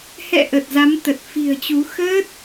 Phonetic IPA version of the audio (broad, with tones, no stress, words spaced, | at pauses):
hɛ̰˧˨ ʔə˨˩t̚za˨˦mt̪ə˨˩t̚ fi̤˨˩ə̯t͡ɕu˨˦ xəː˦˥t̚